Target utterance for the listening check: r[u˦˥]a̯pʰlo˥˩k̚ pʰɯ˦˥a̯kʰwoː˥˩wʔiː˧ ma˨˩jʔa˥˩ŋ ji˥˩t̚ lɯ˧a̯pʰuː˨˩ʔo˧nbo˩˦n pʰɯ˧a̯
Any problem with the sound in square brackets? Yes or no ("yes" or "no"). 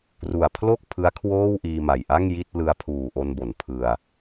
yes